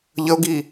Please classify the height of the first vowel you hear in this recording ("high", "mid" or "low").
mid